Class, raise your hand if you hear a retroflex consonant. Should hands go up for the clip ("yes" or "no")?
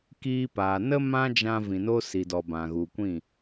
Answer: no